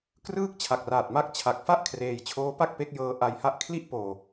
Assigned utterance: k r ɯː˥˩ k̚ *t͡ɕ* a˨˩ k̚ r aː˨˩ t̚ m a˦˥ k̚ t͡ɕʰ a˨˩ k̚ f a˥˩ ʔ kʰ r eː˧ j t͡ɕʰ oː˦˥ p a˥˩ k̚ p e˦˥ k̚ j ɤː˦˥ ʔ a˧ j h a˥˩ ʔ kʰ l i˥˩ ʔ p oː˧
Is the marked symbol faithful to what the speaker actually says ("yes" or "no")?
no